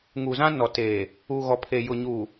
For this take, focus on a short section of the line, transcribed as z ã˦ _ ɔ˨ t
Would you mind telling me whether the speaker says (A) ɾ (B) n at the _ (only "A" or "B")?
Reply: B